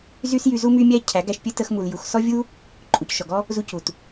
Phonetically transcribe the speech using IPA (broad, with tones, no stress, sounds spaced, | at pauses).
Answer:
z y˦ s j y˧ z u˦ m y˦ mʲ æ˦ cʰ æ˨˦ ɡ æ˧ ʃ pʲ ɘ˦ t ə˧ x m u˨ l j u˨ x s ɔ˦ vʲ u˦ | ǃʼ u˨ c ʃ ɔ˨ ɡ ɔ˦ | z u˧ c u˨ t